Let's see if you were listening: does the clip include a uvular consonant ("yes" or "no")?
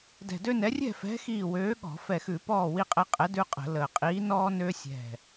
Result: yes